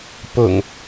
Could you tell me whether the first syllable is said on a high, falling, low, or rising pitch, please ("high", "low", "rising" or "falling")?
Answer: low